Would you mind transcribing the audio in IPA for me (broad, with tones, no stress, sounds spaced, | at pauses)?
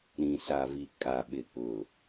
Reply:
ɾ ĩ˨ s a˨ v i˨ kʼ a˨ ɓ ɪ˨ k͡p ʊ˨